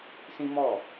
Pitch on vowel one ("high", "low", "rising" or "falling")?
high